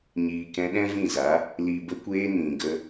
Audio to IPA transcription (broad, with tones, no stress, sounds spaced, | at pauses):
ɲ iː˨ k ɛ̃˧ ɗ ɛ̃˦ v ĩ˦˨ z a˨˦ | l i˨ b ə˧ kʷ eː˧ n ĩ˨ ɡ ə˧